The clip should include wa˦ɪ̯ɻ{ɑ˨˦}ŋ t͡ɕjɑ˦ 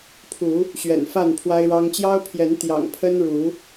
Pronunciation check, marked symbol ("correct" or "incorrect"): incorrect